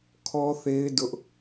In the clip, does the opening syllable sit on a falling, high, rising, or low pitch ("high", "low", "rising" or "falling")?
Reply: high